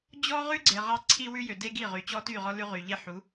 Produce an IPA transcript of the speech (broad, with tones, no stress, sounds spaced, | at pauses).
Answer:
d͡ʑ ɔ˦ ʁ ʉ˦ ɡ͡ǀ e˨ ʁ ɑ˦ ǀʰ i˦ w ʉ˦ j ø˨ d e˦ ɡ i˦˨ ʁ y˨ t͡ɕ ɔ˦ t y˦˨ ʁ ɔ˦ l ʉ˦ ʁ y˨ ʎ e˦ ħ u˨˦